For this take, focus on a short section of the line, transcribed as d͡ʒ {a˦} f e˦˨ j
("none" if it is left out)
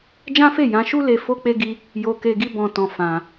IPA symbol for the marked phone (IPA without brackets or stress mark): ã˦